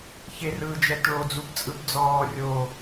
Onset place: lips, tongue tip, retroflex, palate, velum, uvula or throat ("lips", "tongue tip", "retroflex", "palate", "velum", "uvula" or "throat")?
palate